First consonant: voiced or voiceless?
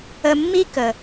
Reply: voiced